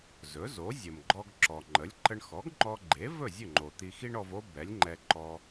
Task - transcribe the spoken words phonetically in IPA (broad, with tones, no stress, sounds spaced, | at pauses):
z ɵ˩˥ z o˩˥ zʲ ə˩ m ɡ͡ǃ ɔ˧ ɡ ǁ ɔ˩ ŋ͡ǃ ə˩˥ lʲ ǃ ə˧ ɳ x ɔ˩˥ ɡ ŋ͡ǃ ɔ˧ ɡ͡ǃ e˩˥ v ɵ˥˩ zʲ ɵ˥˩ ŋ͡ǃ o˩ t̪ i˧ x i˥ ɳ ɔ˧ v o˥ b ɛ˩˥ lʲ ŋ͡ǃ ɛ˧ ǃ ɔ˧